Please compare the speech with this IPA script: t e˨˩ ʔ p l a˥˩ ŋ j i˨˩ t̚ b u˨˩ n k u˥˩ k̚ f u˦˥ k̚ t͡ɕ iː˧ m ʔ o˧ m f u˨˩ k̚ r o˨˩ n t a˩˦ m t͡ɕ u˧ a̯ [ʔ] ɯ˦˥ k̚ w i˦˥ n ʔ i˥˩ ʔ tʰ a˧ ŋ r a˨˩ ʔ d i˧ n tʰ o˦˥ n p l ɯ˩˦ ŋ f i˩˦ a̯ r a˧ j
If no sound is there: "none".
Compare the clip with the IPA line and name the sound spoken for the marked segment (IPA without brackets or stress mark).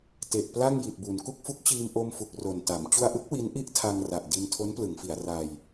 ʔ